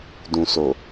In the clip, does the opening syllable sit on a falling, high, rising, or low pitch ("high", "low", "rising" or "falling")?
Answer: low